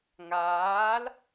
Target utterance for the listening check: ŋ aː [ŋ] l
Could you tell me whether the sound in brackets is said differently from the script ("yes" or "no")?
yes